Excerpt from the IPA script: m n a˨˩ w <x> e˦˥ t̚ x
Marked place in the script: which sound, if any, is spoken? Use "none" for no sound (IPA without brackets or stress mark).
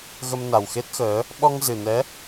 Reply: x